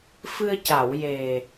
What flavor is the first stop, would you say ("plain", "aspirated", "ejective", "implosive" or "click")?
plain